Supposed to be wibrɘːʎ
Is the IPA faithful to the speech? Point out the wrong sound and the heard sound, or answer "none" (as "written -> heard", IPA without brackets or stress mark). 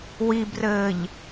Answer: none